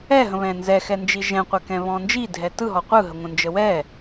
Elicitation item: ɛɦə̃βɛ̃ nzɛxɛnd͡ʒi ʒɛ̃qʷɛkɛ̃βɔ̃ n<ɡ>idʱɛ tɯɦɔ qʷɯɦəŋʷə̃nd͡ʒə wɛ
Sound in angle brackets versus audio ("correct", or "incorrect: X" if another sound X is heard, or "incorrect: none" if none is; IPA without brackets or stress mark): incorrect: d͡ʒ